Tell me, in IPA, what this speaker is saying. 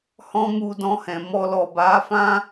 hɔ̃˦mu˧dɔ̃˧hɛ̃˨ mɔ˧lɔ˨ ba˨˦fã˦

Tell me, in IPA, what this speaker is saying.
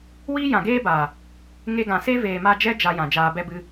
wiː˦jã˨ɡeː˦ba˨ | ŋe˧ɡã˨se˦ veː˨ma˧d͡ʒɛ˦ d͡ʒa˧jã˨ d͡ʒaː˧bɛ˦bɨ˦

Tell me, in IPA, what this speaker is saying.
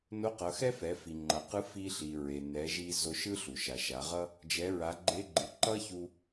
no˧˥qʌ˩˧xɛ˥fɛ˩˧ fi˩ŋ͡ǃʌ˩qɯ˧˥ fi˧ɬi˩ ɹe˩ nɛ˩˧ ʒi˧ zo˧ʃɯ˥ ɬu˩ʃa˩ʃa˩˧ʁʌ˥ | d͡ʒɛ˩˧ɹa˩˧ɡ͡ǃe˧˥ɡ͡ǃɯ˩˧ ǃʌ˥çu˧

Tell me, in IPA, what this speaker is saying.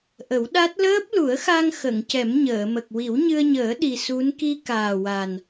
ʔə˨˩˦wɗa˦˥t̚ ləː˦˥p̚lu˨˩˦ə̯xa˧ŋ xə˨˩˨ŋcɛ˨˩˦m ɲəː˨˩˨mə˨˩k̚ wi˨˩˦wɲɨ˧ə̯ɲəː˨˩˦ ɗi˨˩su˧˥n ki˧ kaː˨˩wa˨˩n

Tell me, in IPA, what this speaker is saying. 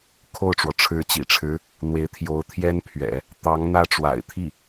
kʰo˥˩ʊ̯ʈ͡ʂwɔ˩ ʈ͡ʂʰɻ̩˧˥t͡ɕḭ˨˩ʈ͡ʂʰɻ̩˧˥ | n̪we˧˥ɪ̯ t̪ʰjo˧˥ʊ̯t̪ʰjɛ˥npʰɥɛ̰˨˩˦ | t̪ɑ˧˥ŋ n̪ä˥ʈ͡ʂwa̰˨˩ɪ̯ t̪ʰi˥˩

